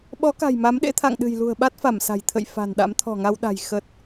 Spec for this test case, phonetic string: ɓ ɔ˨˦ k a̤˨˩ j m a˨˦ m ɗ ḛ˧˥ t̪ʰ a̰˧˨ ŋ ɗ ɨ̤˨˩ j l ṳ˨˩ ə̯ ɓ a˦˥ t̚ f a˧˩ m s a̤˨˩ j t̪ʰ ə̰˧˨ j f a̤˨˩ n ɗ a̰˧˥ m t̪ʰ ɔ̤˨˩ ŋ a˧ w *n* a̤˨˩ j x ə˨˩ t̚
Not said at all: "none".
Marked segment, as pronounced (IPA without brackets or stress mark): ɗ